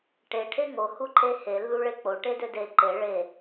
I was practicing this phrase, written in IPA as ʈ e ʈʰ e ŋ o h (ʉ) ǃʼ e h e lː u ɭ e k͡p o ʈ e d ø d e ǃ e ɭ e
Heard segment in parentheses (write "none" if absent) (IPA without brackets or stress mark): u